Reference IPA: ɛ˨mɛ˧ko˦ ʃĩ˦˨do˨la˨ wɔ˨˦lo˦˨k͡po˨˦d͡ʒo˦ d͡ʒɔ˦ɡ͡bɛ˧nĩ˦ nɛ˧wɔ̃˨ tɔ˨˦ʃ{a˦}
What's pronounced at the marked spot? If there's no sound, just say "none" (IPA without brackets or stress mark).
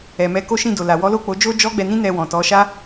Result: a˦